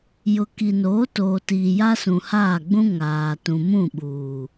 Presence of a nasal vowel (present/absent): present